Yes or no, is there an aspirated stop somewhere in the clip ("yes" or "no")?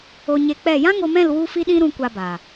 no